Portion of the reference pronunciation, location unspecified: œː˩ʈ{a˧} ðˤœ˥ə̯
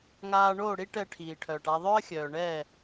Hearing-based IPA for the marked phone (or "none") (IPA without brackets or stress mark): a˧